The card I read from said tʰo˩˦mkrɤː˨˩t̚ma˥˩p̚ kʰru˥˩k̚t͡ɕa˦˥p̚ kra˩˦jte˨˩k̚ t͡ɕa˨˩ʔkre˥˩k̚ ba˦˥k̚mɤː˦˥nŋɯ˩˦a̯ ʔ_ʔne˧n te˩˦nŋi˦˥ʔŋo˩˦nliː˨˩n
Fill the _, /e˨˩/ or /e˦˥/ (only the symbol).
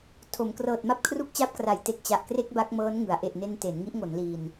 e˨˩